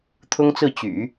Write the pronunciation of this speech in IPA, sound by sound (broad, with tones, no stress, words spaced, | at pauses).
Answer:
t̪ʰʊ˥ŋt͡sɹ̩˥˩ t͡ɕy̰˨˩˦